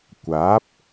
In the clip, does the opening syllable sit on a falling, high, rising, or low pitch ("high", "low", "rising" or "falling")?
rising